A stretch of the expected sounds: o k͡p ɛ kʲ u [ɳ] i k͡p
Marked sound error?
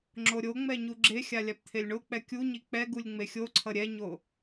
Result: yes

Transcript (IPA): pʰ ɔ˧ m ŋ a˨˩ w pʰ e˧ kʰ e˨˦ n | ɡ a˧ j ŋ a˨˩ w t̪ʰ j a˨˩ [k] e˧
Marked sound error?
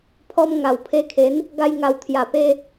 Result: yes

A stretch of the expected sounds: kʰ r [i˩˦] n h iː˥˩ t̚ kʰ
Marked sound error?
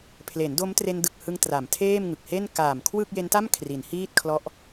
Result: no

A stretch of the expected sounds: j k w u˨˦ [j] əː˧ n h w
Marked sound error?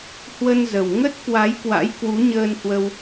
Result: yes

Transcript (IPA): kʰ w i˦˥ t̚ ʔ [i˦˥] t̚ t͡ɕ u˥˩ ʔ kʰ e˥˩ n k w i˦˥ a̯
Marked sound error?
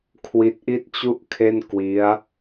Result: yes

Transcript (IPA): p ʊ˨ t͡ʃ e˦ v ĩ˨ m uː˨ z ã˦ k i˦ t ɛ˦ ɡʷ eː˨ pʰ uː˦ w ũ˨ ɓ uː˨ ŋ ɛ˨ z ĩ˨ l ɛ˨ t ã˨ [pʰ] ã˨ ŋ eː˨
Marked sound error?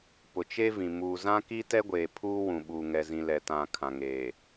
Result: yes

